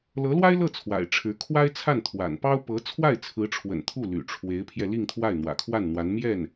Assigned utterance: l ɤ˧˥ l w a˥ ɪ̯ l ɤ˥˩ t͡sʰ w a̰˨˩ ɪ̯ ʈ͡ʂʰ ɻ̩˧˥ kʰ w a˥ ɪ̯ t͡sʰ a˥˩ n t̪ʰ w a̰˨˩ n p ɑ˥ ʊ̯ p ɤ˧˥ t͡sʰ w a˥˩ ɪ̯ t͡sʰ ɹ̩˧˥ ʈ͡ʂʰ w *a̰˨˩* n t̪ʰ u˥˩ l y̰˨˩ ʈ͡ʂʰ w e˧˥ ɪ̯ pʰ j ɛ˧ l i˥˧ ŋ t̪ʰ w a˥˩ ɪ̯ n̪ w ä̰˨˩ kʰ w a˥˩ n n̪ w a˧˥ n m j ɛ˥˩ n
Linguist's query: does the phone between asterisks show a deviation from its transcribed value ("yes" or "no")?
yes